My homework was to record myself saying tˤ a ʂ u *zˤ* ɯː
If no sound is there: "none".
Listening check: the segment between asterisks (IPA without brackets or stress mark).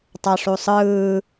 sˤ